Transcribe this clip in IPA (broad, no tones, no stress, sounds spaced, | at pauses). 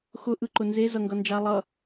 x ʊ ʔ ɯ ǃ ʊ n z e z ʌ ŋ ɡ ʌ n d͡ʒ a lˠ ʌ